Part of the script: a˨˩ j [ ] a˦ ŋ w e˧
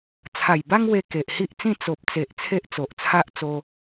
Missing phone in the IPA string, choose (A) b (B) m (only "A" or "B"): A